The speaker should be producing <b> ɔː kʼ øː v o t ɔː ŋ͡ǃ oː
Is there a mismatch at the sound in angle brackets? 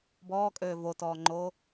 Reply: no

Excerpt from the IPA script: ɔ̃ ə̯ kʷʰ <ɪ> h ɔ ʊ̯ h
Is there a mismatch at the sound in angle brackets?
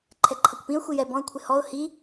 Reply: no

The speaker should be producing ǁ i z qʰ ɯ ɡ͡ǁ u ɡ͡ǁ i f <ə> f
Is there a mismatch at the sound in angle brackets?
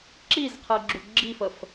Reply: no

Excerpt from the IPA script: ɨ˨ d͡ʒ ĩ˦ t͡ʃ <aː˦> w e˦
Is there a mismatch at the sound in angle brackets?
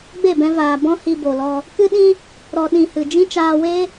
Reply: yes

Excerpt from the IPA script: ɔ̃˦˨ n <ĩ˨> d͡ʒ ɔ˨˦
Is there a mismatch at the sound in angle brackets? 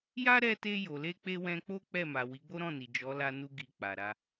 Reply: yes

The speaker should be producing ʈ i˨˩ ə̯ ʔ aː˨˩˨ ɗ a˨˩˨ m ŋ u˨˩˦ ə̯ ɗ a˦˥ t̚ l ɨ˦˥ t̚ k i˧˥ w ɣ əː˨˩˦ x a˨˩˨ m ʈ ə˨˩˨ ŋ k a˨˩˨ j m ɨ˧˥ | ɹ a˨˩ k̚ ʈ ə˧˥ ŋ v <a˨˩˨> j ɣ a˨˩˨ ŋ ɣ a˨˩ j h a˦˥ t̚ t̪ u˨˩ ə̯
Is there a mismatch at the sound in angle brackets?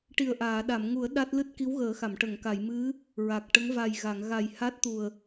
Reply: yes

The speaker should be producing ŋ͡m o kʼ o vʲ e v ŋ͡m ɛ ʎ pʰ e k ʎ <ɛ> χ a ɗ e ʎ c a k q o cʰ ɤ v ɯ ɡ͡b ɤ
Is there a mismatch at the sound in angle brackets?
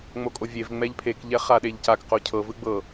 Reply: no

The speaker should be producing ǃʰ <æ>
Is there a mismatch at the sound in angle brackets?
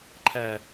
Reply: no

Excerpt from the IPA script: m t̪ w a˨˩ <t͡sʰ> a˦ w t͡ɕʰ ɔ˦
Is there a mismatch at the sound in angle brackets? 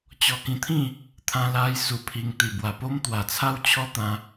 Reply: no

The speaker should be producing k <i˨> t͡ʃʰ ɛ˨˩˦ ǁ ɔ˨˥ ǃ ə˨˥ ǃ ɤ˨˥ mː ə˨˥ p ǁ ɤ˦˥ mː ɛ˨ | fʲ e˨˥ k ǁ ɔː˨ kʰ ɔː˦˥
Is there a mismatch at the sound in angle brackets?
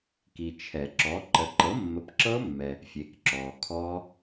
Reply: no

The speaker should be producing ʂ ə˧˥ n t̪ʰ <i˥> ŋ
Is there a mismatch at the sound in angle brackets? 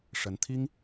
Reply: no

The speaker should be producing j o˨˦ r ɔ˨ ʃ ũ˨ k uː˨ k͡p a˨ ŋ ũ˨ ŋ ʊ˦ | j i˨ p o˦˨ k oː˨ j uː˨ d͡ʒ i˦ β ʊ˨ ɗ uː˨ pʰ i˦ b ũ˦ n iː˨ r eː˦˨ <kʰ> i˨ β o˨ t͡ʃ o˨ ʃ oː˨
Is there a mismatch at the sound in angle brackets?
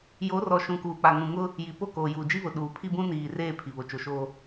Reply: yes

